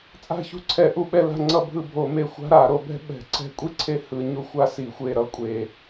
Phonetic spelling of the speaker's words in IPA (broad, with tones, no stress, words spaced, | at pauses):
t͡sʼa̤˦˨çṳ˦˨ ǀʰɛ˧˩˧ʔu˦˨ ɓɛ˦˨la̤˦˨ ŋ͡ǀʌ˦˨bʱɯ˦˨bʱo˧˩˧me˦˨ xʷa̤˥ ɾa˧˩˧ɾo˧˩˧bɛ̤˥ ɓɛ̤˧˩˧ǀɛ̤˦˨ kʷʼi˥ǀʰe˦˨ hɯ˧˩˧ɲu˦˨ xʷa˥si˧˩˧xʷe˦˨ ɾʌ˥kʷʼe˧˩˧